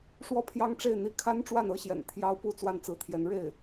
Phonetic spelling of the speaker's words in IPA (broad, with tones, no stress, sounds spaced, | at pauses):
ʂ w ɔ˥ pʰ j ɑ˥ ŋ ʈ͡ʂ e˥˩ ɪ̯ n̪ i˧˥ kʰ a˥ n ʈ͡ʂ w a˥˩ n ɤ˧˥ ɕ j ɛ̰˨˩ n t̪ʰ j ɑ˥ ʊ̯ p u˥ t͡s w a˥˩ n t͡s ɹ̩˧˥ t̪ʰ j ɛ˧˥ n ɻ e˥˩ ɪ̯